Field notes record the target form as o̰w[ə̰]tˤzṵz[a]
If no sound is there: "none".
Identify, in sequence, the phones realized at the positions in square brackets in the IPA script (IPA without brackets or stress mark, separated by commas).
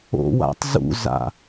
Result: a̰, a̰